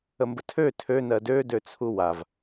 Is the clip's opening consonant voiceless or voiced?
voiced